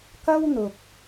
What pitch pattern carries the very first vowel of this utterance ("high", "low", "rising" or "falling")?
high